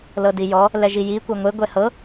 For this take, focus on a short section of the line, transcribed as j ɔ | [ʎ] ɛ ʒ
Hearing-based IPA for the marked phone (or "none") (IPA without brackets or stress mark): l